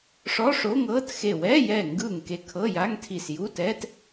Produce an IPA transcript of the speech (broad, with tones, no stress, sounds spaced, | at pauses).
ʂ ɔ˧˥˧ ʂ o˧˥˧ ŋ ɤː˧˥˧ t x e˧˩ w ɛː˧˥˧ j ɛː˧˩ ŋ ɡ ɯː˧˩ ŋ k e˧˩ kʰ ɤ˧˥˧ j a˧˥˧ ŋ tʰ i˧˩ s j u˧˥˧ t ɛː˧˥˧ t